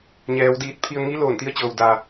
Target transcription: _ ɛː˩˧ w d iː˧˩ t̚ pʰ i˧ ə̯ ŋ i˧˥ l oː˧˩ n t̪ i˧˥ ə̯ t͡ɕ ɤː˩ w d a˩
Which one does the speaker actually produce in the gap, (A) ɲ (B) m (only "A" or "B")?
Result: A